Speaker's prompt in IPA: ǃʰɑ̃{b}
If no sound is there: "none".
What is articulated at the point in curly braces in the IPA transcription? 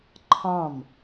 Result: m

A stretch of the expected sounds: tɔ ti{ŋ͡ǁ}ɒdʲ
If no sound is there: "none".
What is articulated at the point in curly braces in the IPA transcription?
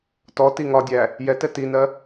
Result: ŋ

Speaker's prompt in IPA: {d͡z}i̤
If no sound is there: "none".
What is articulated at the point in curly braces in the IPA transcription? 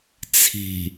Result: t͡sʰ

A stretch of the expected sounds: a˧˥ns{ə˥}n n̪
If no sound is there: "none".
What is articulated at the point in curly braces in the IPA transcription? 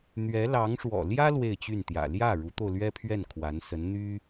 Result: ə˧˥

